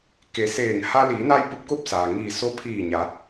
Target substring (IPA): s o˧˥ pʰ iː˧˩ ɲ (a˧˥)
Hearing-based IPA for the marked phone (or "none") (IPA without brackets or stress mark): a˩˧